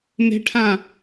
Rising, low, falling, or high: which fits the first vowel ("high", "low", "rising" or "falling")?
high